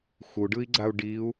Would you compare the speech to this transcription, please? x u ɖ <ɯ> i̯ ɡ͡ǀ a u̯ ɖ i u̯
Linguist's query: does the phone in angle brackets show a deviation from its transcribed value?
no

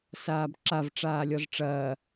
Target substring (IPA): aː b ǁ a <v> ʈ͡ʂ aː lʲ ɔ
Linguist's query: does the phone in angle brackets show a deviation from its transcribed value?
no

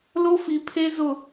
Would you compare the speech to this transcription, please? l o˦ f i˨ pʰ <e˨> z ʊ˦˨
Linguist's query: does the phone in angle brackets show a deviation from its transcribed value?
yes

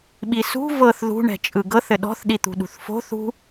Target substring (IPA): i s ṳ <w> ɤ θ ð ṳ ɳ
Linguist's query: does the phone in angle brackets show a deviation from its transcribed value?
yes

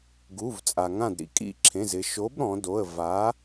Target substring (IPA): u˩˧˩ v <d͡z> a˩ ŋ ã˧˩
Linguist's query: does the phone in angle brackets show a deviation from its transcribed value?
yes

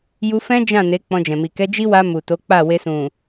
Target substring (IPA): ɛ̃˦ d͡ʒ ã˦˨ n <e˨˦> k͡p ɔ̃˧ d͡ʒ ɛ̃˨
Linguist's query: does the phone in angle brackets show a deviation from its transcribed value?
no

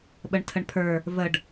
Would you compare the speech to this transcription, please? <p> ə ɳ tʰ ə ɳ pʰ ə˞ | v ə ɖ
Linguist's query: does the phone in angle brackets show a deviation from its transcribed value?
yes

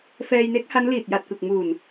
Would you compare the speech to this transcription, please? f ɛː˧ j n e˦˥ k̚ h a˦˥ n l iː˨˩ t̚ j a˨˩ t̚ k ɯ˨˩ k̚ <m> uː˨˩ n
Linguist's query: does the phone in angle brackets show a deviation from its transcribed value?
no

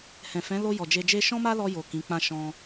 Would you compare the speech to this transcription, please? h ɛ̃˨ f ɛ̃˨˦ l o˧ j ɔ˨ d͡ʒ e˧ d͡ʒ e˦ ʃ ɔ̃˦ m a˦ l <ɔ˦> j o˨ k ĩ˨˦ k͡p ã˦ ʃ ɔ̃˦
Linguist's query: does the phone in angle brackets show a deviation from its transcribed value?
yes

